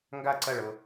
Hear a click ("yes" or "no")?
yes